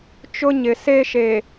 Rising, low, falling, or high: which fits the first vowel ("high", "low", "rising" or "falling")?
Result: high